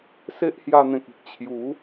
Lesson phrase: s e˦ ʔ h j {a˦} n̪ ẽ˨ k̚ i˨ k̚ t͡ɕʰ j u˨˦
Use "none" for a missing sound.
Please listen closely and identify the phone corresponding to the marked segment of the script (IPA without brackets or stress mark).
a˧